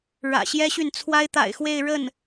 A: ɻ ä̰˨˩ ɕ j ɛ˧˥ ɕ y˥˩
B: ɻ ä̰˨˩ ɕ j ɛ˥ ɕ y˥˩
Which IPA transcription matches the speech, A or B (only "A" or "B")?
B